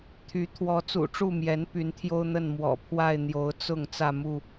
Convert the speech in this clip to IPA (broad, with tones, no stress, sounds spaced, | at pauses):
t̪ʰ y˨˦ t̪ʰ w ɔ˨˦ t͡s ṵ˨˩ ʈ͡ʂ u˥˨ m j ɛ˨˦ n p y˨˦ n t̪ʰ j o˦ ʊ̯ n̪ ə˥˨ n m w ɔ̰˨˩ pʰ w a˥˨ ɪ̯ n̪ j o˨˦ ʊ̯ t͡s ʊ˥˨ ŋ t͡s ä˥˨ m u˥˨